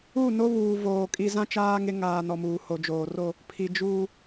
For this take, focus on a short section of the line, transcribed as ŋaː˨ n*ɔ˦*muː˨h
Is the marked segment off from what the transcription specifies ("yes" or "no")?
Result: yes